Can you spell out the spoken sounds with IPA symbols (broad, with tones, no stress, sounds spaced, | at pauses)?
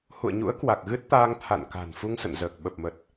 h ṵ˧˨ ə̯ ɲ ṵ˧˥ ə̯ k w a˨˩ k̚ ɣ ɨ˦˥ t̚ t̪ aː˧ ŋ t̪ʰ a̰˧˨ n k a̤˨˩ n f u˧ ŋ s ə̰˧˨ n z əː˨˩ k̚ ɓ ə˨˩ p̚ m ə˨˩ t̚